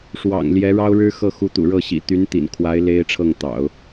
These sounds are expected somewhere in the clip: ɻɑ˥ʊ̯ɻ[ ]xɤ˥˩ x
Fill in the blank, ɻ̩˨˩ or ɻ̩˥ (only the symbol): ɻ̩˥